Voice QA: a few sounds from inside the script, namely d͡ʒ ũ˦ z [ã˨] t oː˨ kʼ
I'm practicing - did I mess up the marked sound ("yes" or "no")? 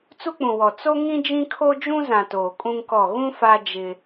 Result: no